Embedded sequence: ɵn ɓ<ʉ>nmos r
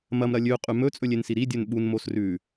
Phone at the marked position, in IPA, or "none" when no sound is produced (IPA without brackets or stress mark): u